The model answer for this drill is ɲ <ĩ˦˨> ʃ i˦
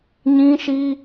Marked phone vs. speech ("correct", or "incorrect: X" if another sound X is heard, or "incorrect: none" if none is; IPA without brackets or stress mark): incorrect: ĩ˦